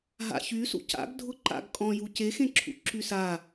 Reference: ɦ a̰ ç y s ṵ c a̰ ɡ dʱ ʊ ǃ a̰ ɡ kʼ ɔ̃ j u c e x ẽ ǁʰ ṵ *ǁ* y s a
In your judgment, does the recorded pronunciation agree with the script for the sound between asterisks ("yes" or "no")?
yes